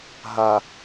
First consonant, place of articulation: glottal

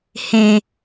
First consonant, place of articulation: glottal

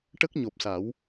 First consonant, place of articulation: retroflex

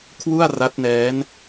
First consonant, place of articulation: velar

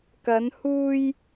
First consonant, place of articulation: velar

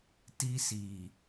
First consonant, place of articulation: alveolar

